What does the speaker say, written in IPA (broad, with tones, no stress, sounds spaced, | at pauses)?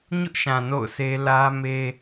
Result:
ɲ ʊ˦ ʔ ʃ ã˨ n o̰˦˨ ʊ̯ s e˦ l ä˦ m e˦